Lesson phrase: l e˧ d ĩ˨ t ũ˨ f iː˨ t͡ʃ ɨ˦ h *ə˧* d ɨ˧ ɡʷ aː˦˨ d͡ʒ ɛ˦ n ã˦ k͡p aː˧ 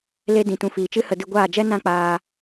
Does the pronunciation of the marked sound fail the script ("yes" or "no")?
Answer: no